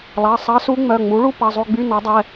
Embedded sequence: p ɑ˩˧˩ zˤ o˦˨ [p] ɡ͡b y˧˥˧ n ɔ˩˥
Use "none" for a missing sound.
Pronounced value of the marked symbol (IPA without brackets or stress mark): none